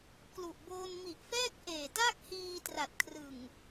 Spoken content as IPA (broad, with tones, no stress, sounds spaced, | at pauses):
k l u˨˩ ʔ b oː˧ n m i˨˩ ʔ f ɛː˥˩ k̚ ʔ eː˨˩ t a˥˩ k̚ h iː˧ t r a˨˩ t̚ kʰ r ɯ˨˩ ŋ